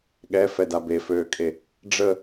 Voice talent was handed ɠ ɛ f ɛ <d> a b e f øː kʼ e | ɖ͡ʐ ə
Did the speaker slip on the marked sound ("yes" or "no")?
no